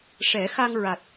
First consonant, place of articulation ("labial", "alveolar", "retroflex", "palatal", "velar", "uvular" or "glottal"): retroflex